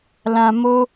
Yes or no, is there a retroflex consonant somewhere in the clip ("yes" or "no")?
no